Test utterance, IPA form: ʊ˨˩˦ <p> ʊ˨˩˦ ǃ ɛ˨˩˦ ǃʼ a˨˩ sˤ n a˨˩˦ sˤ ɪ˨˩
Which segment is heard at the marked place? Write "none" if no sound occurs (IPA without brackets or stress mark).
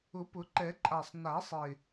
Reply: p